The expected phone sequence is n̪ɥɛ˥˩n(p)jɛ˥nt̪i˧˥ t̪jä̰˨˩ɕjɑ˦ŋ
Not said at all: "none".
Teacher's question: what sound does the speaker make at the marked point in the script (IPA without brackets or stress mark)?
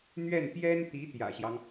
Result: p